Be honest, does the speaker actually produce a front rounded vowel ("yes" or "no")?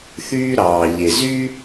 yes